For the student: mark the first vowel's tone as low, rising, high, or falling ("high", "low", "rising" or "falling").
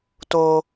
high